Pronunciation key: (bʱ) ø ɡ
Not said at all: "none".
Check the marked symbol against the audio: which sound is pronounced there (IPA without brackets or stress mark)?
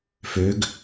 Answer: f